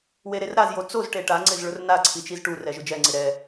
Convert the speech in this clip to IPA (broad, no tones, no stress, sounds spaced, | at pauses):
w e ɾ e r ɾ a z j o t͡s o z ʈ e ʈ a ŋ͡ǀ ɪ z ɭ ʊ r n a ǀʰ i t͡ʃ i z ʈ u r ɛ ʒ ʊ d͡ʒ ɛ ŋ͡ǀ ɪ ɾ ɛ